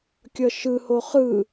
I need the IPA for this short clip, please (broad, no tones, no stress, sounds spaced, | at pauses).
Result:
kʲ ʌ ʃ ɯ h o χ ɯ